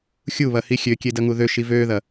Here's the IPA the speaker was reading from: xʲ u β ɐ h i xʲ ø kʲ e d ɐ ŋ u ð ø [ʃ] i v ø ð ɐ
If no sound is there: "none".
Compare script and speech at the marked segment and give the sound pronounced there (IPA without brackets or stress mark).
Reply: ʃ